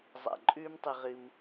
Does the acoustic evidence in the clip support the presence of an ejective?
yes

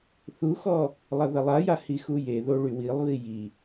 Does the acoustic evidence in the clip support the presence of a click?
no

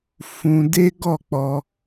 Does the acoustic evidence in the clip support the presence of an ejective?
no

